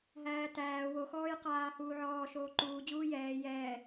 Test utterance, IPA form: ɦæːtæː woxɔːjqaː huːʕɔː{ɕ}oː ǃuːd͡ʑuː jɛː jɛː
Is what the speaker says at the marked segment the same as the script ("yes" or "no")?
no